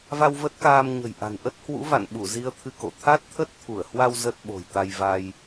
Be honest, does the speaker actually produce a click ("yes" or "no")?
no